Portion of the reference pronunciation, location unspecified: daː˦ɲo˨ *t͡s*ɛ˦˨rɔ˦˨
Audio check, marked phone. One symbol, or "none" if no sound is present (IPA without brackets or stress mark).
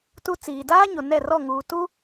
n